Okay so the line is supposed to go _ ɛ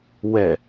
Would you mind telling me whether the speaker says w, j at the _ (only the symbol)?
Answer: w